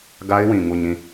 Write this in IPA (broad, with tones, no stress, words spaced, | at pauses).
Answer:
ɡa˦ɪ̯wĩ˨ ŋu˦˨ɲĩ˦˨